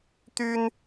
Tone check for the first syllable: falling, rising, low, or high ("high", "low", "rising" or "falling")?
high